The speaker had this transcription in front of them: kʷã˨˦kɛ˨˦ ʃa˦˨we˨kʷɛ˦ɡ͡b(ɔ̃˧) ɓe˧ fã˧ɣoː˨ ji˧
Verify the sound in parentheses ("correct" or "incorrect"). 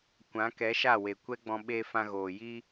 correct